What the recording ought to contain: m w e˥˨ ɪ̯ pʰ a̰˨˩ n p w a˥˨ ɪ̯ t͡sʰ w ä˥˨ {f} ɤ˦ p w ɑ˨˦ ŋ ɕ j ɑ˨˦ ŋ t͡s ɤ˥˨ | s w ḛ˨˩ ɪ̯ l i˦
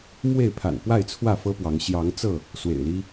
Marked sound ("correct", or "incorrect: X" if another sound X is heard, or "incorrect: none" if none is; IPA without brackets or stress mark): correct